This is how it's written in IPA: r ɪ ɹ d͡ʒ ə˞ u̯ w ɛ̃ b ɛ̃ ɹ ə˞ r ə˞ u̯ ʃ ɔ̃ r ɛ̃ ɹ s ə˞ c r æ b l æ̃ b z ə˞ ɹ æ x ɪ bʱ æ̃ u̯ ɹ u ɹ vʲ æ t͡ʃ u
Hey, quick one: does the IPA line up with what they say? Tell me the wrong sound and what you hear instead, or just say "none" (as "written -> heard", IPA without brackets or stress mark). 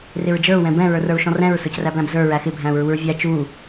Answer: none